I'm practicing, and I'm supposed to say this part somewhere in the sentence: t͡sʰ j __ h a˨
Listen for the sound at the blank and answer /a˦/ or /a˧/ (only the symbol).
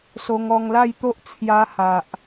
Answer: a˧